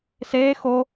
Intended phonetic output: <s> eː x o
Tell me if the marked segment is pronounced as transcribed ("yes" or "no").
yes